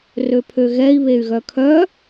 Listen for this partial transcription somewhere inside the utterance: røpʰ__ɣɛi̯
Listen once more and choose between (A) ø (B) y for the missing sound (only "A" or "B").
A